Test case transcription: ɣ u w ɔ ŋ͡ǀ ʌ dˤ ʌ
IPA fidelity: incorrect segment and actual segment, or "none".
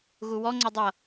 none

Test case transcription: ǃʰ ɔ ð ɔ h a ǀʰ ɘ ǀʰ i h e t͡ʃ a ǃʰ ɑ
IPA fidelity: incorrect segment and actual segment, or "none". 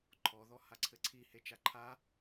ɑ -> a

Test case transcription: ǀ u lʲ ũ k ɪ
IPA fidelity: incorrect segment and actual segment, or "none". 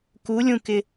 ǀ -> k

